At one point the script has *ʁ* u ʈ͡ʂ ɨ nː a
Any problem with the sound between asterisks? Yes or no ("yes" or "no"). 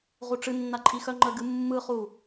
no